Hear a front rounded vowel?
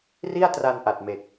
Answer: no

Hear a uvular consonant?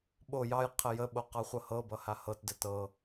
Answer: yes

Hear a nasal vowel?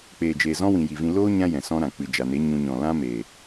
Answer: yes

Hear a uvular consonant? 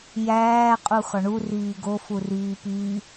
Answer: yes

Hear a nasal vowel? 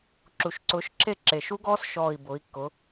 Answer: no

